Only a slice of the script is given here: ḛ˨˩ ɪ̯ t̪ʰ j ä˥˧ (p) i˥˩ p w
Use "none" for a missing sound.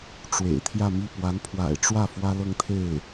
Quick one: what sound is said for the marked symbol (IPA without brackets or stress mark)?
m